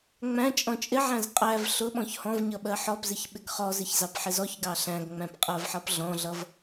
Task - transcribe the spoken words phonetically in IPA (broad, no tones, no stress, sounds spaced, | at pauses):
ŋ͡m æ̃ t͡ʃʼ ɔ̃ t͡ʃʼ ɪ ʕ æ̃ z qʼ æ v ɬ ʊ ɓ ɔ̃ ç h ɔ̃ v ɲ ʌ ɓ ɜ ħ ɔ p z ɪ ç ɓ ɪ ɡ χ ɔ z ɪ ç z ɑ p ħ ɪ z ɔ ç ɡ ɑ ɬ æ̃ ɡ ŋ͡m æ̃ p qʼ ɜ v ħ ʌ p ɮ ɔ̃ ɮ ʌ v